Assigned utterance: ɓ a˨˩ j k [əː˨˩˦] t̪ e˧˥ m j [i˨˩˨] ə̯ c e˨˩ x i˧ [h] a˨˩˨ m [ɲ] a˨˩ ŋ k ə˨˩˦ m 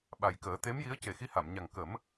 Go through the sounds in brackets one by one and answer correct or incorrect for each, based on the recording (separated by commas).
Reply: correct, incorrect, correct, correct